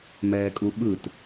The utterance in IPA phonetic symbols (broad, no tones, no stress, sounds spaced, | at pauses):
m ɛː kʼ u ɓ ɯ t